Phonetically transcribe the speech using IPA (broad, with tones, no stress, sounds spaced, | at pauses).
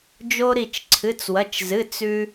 d͡ʒ o˧ ɾ i˧˩ t͡ʃ ǀʰ ɨ˩˧˩ t͡s w ɐ˩˧˩ t͡ʃ z ɨ˩˧˩ t͡s ʉ˧